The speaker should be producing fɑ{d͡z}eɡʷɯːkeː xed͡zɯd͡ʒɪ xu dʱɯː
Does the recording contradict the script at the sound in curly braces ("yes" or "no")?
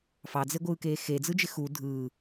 no